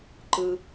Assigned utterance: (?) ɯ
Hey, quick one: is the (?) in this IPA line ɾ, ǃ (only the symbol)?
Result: ǃ